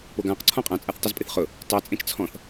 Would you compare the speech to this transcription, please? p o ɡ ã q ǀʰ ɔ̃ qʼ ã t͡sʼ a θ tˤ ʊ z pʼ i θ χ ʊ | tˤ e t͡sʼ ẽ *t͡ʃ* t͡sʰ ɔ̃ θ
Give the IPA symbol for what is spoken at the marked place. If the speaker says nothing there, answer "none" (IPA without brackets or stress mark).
t͡ʃ